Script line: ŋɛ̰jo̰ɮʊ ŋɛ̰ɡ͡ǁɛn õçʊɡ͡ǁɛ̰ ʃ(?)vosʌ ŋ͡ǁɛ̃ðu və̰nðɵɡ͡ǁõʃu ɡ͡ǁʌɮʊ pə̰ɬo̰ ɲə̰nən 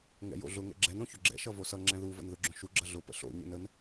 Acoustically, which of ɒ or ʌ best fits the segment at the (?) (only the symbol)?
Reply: ʌ